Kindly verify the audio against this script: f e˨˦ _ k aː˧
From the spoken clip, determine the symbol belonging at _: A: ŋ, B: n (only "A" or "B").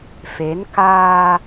B